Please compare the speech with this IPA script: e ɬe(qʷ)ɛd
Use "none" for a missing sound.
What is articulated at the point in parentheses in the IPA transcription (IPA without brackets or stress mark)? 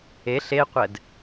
qʷ